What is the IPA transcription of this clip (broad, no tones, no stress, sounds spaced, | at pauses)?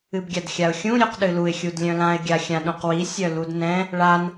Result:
ɨ b ɡʲ a d xʲ a ʊ̯ xʲ ũ ɾʲ o q ɗ ɨ l u ɪ̯ xʲ u d lʲ œ̃ l ã ɪ̯ ɡʲ a xʲ ã ɗ õ q w i sʲ œ l u d n ɛ̃ | ɭ a n